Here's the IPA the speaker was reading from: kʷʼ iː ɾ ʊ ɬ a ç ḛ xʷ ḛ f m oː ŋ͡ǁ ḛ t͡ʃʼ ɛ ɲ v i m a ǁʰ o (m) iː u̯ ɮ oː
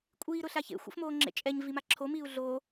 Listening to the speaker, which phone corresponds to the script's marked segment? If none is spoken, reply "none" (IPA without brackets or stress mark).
m